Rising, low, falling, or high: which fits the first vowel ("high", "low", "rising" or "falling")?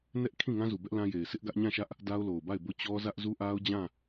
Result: high